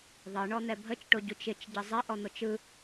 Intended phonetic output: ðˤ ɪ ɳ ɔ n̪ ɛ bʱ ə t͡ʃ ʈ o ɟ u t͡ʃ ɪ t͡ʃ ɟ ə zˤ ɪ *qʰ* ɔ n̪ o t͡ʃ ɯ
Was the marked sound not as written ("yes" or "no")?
yes